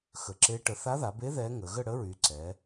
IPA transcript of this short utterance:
x ə˩˧ ǁ e˧˥ ʈ ə˩˧ θ a˧˥ ð a˩˧ b e˧˥ ð ɛ˧˥ ŋ ə˩˧ ɣ ə˦˨ ɽ ə˧˥ ɹ y˩˧ ǀ ɛ˩˧

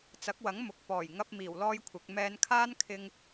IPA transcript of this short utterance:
t͡s ɐ˨˥ k̚ w ɐ˨˥ ŋ m ʊ˨ k̚ p ɔː˨˩ j ŋ ɐ˧ p̚ m iː˨˩ w l ɔː˥ j kʷʰ ɪ˨˥ k̚ m ɛː˧ n kʰ aː˥ n kʰ ɪ˧ ŋ

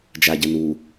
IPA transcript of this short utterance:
d͡ʒ a ɟ ɐ n u

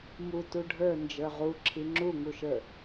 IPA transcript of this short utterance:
m u t u ɖʱ ə˞ n d͡ʒ ə˞ ʁ u ǁʰ i ŋ͡ǁ u ŋ u ʃ ə˞

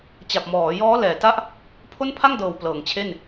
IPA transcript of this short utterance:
t͡ɕ a˨˩ p̚ m ɔː˩˦ j ɔː˦˥ l ɛː˨˩ t a˥˩ ʔ | pʰ o˥˩ n pʰ a˥˩ ŋ d ɤː˨˩ w p l ɤː˩˦ ŋ t͡ɕʰ e˥˩ n

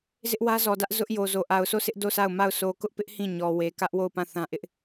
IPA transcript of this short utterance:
z ɪ˦ ʔ w ä˦ z ɔ˨ d ä˦ ʔ z ʊ˦ ʔ j o˨ z o˨ ʔ a˨ ʊ̯ sʰ o˦˨ sʰ ɪ˦ ʔ d o˦˨ sʰ a˦˨ ʊ̯ m a˦˨ ʊ̯ sʰ o˨ k ʊ˦ ʔ p ɪ˦ ʔ h ĩ˦˨ ɲ ɔ˨ w e˨ k ä˦ ʔ w o˦˨ ʊ̯ p ã˦˨ θ ã˦ ʔ ɪ˦ ʔ

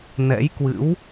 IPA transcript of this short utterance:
n ɛ̰˧˥ j k w ɨ̰˧˥ w

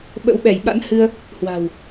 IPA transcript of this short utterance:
ɓ ə̰˧˥ w ɓ ɛ˧˩ j ɓ a̰˧˥ n h ɨ˧ ə̯ | h w a̤˨˩ w

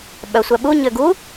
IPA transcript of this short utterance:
ɓ œ sʷ æ ɓ u ɲ ø ɡ u

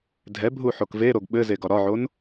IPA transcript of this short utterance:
dʱ ɛ bʱ u ħ o k v e ɾ o ɡ ɓ ɘ z e ɡ ɒ ɾ ɒ ʕ o n

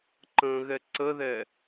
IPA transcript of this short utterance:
ǃ ə̃ ɣ ɛ ǀ ə ð ɛ

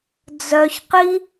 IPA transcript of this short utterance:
d͡z œ ç q i

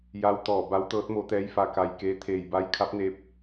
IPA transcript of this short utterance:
j a˧˥ w t̪ ɔː˧˩ b a˧˥ w t̪ ɤː˧˥ t̚ m o˧˥ t̪ ɛː˧˥ j f a˧ k a˧ j k eː˧˥ t̪ʰ eː˧˩ j b a˧˥ j kʰ a˧˥ p̚ n eː˧˥ p̚

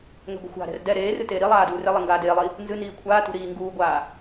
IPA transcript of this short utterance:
ŋ ɛ̤ ɡʷ ə̤ xʷ a̤ ɾ ɛ̤ r d ɛ ɾ eː r ɨ t eː ɾ i lˠ aː d uː r e lˠ e ŋ ɡ aː d eː lˠ i | n z ɨ n iː kʷʰ aː t ṳ ɾ iː ŋ ɡ uː ɡʷ aː

